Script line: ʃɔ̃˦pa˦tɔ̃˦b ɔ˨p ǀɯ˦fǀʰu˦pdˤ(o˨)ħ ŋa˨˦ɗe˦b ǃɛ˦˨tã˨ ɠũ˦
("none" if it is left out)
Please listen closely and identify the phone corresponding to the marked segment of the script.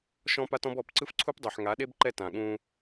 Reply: o˨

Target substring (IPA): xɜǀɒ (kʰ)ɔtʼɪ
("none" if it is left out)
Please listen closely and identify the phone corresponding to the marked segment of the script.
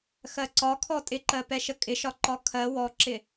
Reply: kʰ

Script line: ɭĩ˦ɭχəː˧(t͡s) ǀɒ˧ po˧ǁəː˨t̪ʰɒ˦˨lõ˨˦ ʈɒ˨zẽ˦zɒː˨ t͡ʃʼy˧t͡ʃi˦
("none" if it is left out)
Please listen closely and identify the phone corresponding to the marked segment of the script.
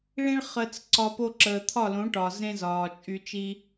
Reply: t͡s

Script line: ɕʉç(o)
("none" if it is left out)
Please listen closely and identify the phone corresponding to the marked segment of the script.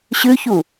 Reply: u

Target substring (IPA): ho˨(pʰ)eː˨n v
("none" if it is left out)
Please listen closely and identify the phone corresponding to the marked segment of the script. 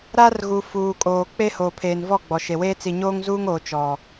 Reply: pʰ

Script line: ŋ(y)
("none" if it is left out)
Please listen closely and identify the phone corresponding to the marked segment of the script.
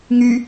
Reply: y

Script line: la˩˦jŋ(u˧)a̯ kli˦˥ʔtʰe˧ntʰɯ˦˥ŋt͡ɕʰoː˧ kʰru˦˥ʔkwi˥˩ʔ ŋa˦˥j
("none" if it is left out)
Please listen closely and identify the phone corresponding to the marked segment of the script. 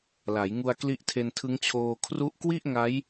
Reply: u˧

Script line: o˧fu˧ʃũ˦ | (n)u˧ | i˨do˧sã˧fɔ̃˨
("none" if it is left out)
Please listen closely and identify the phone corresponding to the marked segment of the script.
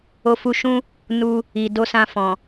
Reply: n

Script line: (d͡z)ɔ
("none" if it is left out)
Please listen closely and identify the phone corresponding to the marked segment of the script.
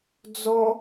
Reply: d͡z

